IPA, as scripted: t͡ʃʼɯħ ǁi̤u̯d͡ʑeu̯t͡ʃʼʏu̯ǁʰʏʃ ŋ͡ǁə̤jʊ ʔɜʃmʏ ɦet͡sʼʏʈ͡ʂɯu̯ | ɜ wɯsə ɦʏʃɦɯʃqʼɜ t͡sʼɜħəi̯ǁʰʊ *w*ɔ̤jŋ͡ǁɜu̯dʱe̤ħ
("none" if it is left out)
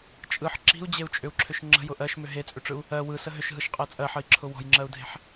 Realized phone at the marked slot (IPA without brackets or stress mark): w